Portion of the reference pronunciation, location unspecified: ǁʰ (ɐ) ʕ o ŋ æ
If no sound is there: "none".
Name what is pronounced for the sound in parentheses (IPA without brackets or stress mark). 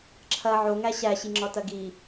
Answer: ɐ